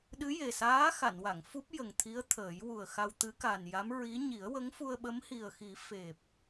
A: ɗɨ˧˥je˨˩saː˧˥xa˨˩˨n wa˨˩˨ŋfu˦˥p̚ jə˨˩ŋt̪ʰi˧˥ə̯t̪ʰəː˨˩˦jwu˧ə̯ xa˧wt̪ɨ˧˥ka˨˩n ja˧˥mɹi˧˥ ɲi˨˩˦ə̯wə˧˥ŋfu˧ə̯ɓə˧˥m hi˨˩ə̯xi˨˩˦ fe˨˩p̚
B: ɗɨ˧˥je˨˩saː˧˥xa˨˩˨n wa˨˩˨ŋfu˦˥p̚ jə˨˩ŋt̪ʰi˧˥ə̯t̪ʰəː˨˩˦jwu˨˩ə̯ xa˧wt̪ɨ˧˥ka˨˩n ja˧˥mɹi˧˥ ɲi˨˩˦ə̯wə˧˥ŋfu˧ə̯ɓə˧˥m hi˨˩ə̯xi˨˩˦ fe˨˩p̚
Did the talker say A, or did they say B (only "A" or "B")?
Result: B